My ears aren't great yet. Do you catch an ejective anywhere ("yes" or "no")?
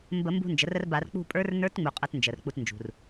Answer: yes